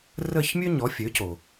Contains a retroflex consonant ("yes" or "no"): no